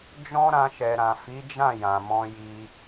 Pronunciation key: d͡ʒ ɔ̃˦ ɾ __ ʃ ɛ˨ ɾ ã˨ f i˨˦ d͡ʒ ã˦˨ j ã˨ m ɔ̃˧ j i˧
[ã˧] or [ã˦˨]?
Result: ã˧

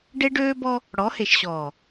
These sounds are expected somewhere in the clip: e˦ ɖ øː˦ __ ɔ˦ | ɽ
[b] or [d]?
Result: b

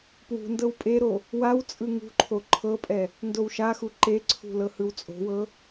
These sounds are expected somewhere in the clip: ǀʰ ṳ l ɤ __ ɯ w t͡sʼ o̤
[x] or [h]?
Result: h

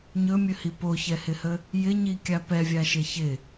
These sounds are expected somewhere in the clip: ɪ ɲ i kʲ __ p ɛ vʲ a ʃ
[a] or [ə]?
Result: a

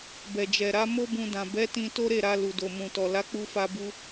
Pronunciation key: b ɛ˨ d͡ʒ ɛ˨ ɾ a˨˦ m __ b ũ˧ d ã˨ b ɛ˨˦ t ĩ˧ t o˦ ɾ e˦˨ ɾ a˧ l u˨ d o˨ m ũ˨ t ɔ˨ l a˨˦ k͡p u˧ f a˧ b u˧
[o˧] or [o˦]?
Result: o˦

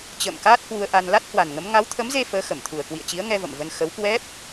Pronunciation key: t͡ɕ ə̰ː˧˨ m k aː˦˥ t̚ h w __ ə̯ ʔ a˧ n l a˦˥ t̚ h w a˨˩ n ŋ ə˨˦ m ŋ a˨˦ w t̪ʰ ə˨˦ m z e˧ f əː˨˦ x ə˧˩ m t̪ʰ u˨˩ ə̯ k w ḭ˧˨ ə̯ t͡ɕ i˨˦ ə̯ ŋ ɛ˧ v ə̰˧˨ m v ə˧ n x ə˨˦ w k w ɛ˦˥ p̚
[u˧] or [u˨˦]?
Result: u˧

